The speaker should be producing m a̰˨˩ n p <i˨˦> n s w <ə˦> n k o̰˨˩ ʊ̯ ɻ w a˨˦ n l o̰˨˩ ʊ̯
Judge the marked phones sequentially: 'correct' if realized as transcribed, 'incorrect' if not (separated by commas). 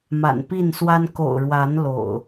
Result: incorrect, incorrect